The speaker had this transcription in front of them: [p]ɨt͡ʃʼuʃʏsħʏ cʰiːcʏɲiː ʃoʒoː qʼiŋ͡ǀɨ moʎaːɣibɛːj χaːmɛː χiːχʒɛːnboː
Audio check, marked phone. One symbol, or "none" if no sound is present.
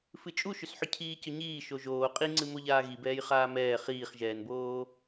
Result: f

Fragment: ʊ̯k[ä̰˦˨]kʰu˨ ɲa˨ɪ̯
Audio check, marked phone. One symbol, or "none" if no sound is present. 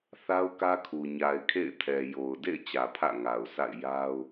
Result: ä˦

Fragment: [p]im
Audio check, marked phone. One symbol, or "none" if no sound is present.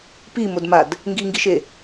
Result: p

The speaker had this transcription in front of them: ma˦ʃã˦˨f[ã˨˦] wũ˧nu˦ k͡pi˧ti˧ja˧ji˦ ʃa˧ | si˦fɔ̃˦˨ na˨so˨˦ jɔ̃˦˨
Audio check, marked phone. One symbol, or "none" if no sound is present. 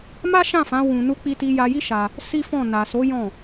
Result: ã˨˦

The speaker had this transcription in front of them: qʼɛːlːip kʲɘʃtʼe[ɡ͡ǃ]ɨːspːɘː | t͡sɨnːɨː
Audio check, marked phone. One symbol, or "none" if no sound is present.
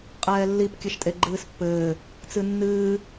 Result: ɡ͡ǃ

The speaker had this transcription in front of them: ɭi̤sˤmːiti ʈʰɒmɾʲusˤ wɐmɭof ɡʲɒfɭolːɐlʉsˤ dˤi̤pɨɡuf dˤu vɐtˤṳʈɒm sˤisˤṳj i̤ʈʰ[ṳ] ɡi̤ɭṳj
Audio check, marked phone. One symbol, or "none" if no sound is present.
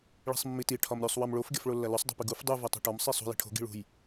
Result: o̤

